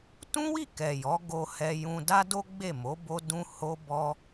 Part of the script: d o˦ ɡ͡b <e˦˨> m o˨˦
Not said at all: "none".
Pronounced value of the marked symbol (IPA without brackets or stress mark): e˦˨